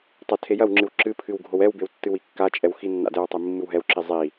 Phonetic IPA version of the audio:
tˤ ɐ tʰ e j ɐ w ŋ͡ǁ ɨ w ǁ ɨ pʰ ɨ w ɡʱ o w ɛ w b e w tː ɨ w i kː a t͡ʃʼ ɛ w x i nː a̰ d ɛ w tˤ i mː ɨ w ɦ ɛ w ǁ i zˤ i

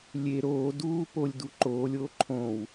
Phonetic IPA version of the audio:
lʲ e ɾ oː d uː p o lʲ d u ǃ oː lʲ oː ǃʰ õ w

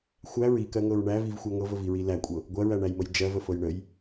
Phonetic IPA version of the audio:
xʷ æ ɹ i k ɜ ŋ ɤ ɹ ɳ æ v i v xʷ ɜ ŋ ɤ v ə v i ɹ i l æ kʷʼ ɤ | ɡʷ ɜ ɹ æ ɳ æ j m ə j d͡ʒ ɜ v ə f ɤ j ɳ ə j

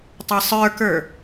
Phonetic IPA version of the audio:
tˤ ɛ sˤ ə˞ k ə˞

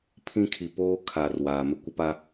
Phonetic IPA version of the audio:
pʰ ĩ˦ kʰ i˨ p oː˦ kʰ a˨ r w aː˨ m ɪ˦ kʷ ɪ˦ p a˦

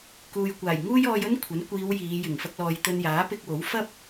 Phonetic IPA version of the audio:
k uː˨ j kʷ aː˨˩ j ŋ uː˥ j ɔː˧ j ɵ˥ n kʷʰ ɐ˨˥ n kʷ iː˨˧ w j iː˨˧ j ɪ˨˩ ŋ f ɐ˧ k̚ l ɔː˨ j t̪ ɵ˧ n j aː˨˥ p ɪ˧ k̚ w o˨˥ w f ɐ˥ p̚

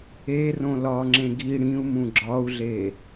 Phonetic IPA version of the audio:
e r õ l ɒ ŋ͡ǁ ẽ ɡ i ɽ ĩ u̯ m ũ ɡ͡ǁ ɒ u̯ ɮ e

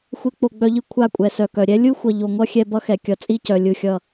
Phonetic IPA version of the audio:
xʷ e˧ k͡p o˨ ɡ͡b œ˧ ʎ ɯ˧ kʷʰ a˦˨ kʷʼ ɛ˨ s œ˨ k œ˨ ɾʲ ɛ˦ lʲ ɯ˦ xʷ ʌ˨ ʎ o˨ ŋʷ ʌ˦ xʲ ɛ˧ b ʌ˦ x ɛ˨ kʲ ʌ˨˦ t͡sʼ i˦ c œ˨ lʲ ɯ˦˨ xʲ ʌ˦˨

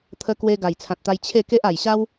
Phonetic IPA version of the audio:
t̪ʰ ə˧ k w e˧ ɡ a˨˩ j t͡sʰ ã˨ t̚ t̪ a˧ j t͡ɕʰ e˥˧ k e˦ ʔ a˨˩ j ɕ a˦ w

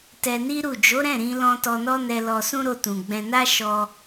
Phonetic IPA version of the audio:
t ɛ˧ n i˦ ɾ u˦˨ d͡ʒ o˨˦ ɾ ɛ̃˦˨ ɾ ĩ˧ l ɔ̃˧ t ɔ˧ n ɔ˦ n ɛ˧ l ɔ˧ s ũ˦ ɾ o˧ t ũ˨ ɡ͡b ɛ̃˧ n a˦ ʃ ɔ˧

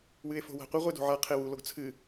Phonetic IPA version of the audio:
w ɨ e̯ f o̤ w a̤ qʷ ɘ ʁʷ e d o̤ ʕ a qʰ e w u l o ɡ t͡sʰ ɨ

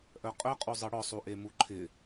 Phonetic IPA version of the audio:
ʔ œ qʼ œ qʼ u zˤ ɤ ɽ ɔ sˤ u ʔ e m u ǃʰ ɪ

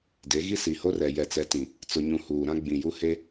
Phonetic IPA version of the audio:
d e˨˦ ɣ i˦ s i˨ h o˦ r ɛ˨ j ɛ˨ t͡s ɛ˨ t ĩ˨ | t͡s ʊ˨ ɲ ũ˨ h uː˨ ɾ ã˦ ɡ͡b ĩ˨ j u˦ h e˦

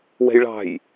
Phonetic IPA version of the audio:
w ɛ̤ j ɭ ɑ̤ j

